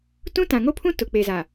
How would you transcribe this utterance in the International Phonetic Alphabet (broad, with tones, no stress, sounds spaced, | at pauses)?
t ũ˦ t ã˨ ŋ o˦ pʰ ũ˦ t ʊ˨ k͡p e˨ z a˨